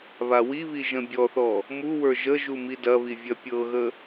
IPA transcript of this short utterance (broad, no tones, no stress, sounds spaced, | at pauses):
β a w i β i ʒ ə̃ bʲ ɔ θ ɔ | m u w ə˞ ʒ ə ʒ u m i d ɐ β i vʲ ɐ pʲ ɤ ɣ ə